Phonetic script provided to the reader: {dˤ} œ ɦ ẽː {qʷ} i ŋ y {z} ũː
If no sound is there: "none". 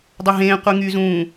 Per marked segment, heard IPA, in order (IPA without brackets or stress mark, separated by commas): dˤ, qʷ, z